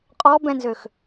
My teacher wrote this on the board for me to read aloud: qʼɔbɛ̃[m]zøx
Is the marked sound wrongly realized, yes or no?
yes